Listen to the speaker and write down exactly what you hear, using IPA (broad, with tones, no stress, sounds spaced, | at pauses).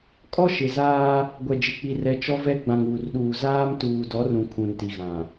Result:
kʼ ɔ˦ ʃ ɪ˨ z aː˦ | ɡʷ ɛ˨ d͡ʒ ɪ˨ k͡p i˨ r ɛ˨ t͡ʃ ɔ˦ v ɛ˦ ɡ͡b ã˨ ŋ uː˨ r ɗ uː˨ z aː˦ m t uː˨ d ɔ˨˦ r ũ˨ kʰ ũ˨ n t i˨ ɣ ã˨